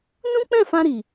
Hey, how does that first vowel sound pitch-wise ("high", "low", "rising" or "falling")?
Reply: high